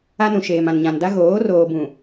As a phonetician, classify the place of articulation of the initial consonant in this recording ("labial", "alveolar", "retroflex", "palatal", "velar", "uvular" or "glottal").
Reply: alveolar